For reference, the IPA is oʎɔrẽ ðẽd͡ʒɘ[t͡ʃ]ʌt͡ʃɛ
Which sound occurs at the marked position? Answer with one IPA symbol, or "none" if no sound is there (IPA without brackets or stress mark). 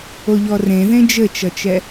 t͡ʃ